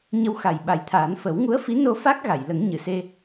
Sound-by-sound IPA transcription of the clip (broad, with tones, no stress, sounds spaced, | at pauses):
ɲ ə˧ w x a˨˩ j ɓ a˨˩˦ j t̪ʰ aː˨˩˦ n f ə˨˩˦ w ŋ u˧˥ ə̯ f i˧˥ n o˧ f a˦˥ k̚ ɣ a˨˩˨ j l ə˨˩˦ ŋ ɲ ɨ˨˩˨ s e˧